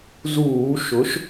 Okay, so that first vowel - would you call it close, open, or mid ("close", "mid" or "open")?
close